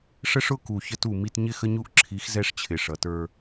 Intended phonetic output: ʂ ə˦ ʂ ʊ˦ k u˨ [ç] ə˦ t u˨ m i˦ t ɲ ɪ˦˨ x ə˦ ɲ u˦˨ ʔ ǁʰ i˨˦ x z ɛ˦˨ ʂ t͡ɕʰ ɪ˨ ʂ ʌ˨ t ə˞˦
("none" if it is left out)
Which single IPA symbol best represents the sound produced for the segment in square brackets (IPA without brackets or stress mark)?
ç